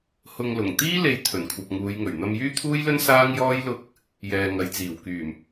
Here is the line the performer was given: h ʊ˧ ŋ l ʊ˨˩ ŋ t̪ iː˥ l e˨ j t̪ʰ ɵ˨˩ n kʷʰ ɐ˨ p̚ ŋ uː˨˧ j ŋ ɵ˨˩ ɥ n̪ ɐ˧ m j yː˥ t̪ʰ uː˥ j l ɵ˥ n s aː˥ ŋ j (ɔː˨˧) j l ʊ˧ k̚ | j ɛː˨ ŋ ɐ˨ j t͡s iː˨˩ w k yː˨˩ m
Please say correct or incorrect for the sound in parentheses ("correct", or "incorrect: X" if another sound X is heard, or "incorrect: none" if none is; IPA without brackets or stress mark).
incorrect: ɔː˥